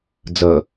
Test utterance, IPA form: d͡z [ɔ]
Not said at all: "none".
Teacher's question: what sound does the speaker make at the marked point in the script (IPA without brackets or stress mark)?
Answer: ʌ